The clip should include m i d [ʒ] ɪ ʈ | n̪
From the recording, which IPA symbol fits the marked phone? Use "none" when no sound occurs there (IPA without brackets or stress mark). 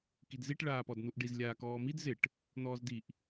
z